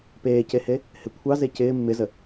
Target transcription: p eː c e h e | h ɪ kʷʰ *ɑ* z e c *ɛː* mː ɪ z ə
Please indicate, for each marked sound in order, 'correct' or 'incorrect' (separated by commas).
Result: correct, incorrect